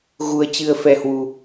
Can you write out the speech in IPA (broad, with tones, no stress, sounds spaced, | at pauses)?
ɣ u˧ ə̯ t͡ɕ ɨ˧ ə̯ f ɛ˧ h w u˧